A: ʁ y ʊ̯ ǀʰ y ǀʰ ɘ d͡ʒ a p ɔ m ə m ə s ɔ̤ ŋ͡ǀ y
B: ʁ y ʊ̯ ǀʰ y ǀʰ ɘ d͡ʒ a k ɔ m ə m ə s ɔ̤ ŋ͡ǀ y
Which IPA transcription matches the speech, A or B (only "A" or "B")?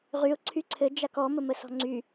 B